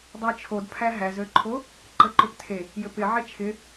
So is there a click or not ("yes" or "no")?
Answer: yes